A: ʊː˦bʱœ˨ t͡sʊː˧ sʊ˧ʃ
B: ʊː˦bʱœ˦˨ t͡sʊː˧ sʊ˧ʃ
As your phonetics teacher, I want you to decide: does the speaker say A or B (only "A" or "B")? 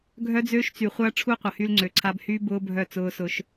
B